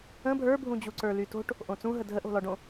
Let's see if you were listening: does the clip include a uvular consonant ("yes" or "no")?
no